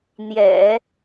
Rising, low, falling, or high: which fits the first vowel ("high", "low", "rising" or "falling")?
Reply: low